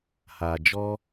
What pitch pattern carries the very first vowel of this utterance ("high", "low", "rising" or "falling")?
low